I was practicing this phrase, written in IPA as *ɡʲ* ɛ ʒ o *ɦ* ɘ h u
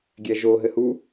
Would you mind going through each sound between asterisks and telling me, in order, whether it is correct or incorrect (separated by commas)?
correct, correct